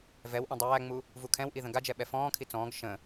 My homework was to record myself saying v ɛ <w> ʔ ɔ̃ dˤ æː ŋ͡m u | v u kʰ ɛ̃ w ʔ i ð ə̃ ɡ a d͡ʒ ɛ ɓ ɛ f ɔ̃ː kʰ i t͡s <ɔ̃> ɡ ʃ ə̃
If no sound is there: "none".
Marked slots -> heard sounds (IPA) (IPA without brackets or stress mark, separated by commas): w, ɔ̃ː